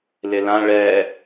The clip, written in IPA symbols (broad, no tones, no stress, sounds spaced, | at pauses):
l ɪ l ã ɭ ɛ